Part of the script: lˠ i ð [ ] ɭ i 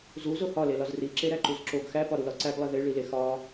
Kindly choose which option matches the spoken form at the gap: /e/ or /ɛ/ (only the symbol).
e